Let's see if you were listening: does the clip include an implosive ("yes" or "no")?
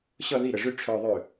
no